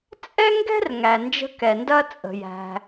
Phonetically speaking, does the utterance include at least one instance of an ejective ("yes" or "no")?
yes